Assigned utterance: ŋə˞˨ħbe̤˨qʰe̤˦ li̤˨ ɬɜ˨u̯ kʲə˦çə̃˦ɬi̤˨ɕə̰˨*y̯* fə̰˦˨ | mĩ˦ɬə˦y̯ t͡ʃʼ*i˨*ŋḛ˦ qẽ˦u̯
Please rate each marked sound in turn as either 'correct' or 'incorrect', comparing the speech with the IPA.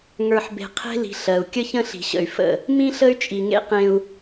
correct, correct

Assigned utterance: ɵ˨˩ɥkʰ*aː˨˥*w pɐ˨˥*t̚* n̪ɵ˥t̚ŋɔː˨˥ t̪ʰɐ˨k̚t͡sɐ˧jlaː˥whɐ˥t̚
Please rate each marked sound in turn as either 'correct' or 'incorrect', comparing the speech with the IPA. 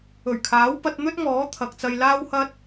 correct, correct

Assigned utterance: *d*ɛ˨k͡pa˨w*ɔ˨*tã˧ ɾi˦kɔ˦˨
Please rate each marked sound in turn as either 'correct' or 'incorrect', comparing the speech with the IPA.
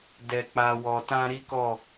correct, correct

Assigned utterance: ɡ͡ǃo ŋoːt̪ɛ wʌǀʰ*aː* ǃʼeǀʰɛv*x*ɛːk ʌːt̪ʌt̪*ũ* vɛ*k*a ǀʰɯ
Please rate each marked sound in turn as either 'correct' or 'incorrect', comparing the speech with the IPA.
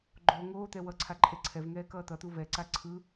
incorrect: a, incorrect: ŋ, incorrect: u, incorrect: ǀ

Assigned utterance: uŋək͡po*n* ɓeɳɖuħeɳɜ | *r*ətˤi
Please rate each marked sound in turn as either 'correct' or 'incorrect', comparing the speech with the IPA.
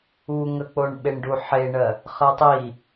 incorrect: ɳ, incorrect: χ

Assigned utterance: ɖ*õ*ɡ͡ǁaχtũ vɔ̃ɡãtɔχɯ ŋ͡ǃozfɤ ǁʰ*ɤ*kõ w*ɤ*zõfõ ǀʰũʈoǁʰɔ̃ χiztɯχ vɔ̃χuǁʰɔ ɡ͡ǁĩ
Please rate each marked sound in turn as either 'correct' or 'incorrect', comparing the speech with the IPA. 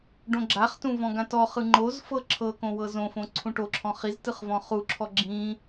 correct, correct, correct

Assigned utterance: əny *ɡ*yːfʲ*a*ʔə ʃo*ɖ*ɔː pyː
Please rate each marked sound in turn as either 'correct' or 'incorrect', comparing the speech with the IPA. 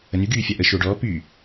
correct, correct, correct

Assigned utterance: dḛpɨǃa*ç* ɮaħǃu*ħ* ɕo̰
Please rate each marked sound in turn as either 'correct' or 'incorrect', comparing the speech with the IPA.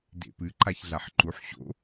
correct, correct

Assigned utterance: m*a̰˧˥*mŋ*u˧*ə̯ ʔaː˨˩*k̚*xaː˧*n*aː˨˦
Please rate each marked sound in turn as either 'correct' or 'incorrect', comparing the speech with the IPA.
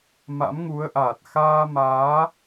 correct, incorrect: u˨˦, incorrect: t̚, incorrect: m

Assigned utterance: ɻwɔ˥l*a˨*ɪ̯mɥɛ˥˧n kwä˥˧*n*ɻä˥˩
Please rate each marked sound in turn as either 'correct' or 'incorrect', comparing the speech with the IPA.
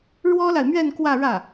correct, incorrect: none

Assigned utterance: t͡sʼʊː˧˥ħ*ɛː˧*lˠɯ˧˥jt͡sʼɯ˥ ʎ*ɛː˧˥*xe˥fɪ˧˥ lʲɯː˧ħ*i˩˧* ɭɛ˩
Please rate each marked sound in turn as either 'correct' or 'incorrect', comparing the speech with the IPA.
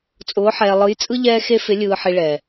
correct, incorrect: ɛː˥, incorrect: i˧

